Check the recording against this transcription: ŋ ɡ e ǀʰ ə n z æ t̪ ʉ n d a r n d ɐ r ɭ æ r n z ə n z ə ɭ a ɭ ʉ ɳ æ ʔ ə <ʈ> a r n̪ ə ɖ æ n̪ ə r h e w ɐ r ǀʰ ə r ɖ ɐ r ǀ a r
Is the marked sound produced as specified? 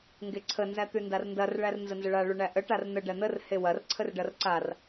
yes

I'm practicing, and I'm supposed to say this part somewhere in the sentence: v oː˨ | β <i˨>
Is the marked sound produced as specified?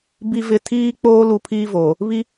no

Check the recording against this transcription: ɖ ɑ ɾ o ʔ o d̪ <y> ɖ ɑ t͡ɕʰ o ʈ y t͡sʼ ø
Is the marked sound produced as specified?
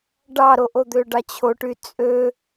no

